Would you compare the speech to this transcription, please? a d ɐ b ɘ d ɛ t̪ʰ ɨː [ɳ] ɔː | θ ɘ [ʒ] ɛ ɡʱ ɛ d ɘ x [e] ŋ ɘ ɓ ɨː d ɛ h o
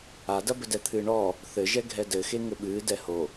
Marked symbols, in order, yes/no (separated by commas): yes, yes, yes